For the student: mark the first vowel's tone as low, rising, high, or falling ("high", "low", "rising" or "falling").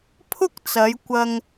high